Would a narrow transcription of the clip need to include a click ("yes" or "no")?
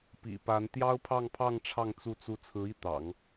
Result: no